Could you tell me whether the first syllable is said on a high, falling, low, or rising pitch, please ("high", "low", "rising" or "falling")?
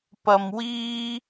low